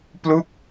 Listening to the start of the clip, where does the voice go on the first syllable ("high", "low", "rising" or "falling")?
falling